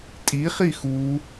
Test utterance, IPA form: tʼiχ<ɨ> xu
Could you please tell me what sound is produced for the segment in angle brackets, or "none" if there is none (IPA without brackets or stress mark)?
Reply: i